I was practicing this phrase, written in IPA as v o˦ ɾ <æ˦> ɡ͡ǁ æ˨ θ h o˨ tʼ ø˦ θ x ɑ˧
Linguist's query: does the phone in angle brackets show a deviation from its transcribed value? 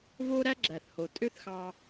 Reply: no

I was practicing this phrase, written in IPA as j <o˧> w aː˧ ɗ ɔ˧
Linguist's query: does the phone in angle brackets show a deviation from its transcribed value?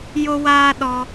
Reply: no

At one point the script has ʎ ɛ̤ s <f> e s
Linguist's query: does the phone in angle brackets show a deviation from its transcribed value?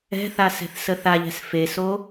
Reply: no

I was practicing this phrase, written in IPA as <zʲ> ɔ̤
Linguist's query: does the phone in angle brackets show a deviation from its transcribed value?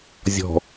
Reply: no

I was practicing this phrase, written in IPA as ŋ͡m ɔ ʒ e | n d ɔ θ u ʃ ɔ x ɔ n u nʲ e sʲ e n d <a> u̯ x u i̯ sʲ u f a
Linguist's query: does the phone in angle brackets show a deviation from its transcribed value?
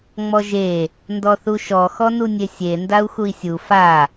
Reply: no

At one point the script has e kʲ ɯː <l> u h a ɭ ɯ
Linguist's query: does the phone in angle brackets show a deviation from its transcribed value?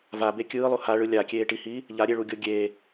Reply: yes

